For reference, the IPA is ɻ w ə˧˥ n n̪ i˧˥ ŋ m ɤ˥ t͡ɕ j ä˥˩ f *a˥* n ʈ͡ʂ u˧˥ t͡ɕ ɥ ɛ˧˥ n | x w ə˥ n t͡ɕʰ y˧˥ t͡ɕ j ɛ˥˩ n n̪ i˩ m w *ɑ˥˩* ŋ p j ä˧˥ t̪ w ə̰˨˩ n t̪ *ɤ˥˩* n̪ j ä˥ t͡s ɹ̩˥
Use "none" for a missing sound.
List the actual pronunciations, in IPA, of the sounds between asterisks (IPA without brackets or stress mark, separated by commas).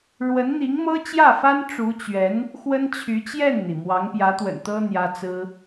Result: a˥, ɑ˧˥, ɤ˥